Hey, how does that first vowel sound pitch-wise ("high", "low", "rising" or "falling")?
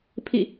falling